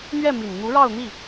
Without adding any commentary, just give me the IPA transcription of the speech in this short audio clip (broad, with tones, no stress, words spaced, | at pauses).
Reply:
n̪ɥɛ˥˩ mi˨˩nn̪u˧˥ɻɑ˥˧ʊ̯ n̪i˥˩